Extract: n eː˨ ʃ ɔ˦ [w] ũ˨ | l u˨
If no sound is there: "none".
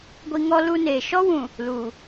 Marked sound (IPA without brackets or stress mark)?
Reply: w